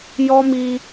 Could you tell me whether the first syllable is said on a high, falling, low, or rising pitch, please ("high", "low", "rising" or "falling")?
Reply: high